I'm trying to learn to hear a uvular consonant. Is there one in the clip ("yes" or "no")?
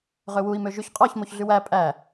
yes